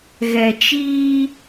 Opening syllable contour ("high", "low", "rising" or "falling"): low